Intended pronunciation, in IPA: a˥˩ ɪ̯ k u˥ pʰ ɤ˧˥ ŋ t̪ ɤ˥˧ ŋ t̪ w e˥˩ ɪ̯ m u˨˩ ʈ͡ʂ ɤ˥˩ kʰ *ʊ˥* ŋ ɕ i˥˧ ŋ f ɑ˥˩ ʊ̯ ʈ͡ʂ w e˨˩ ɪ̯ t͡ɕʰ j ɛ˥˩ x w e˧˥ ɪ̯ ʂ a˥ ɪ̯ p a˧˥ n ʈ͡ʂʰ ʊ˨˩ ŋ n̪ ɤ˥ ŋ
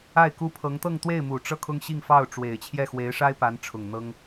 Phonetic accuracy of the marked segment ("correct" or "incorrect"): correct